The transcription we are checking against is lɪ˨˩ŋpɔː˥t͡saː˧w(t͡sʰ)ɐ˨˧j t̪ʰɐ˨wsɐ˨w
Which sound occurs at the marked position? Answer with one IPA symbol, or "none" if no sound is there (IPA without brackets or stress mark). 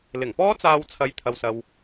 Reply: t͡sʰ